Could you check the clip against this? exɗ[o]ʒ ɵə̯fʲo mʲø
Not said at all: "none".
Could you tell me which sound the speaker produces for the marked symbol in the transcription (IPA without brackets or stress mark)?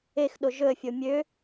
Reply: o